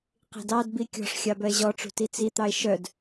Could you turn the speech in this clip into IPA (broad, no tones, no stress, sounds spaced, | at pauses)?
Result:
q i̤ d ɑ d b i kʲ ɔ̤ ʂ xʲ ɑ b œ e̯ ʑ ɔ ʈ͡ʂ ṳ t i t͡s i t̪ ɑ e̯ ʃ œ d